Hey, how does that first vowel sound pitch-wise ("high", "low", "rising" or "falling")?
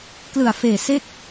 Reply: low